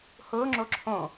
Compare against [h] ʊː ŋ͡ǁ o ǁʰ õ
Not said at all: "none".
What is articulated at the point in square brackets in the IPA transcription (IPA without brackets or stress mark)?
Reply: h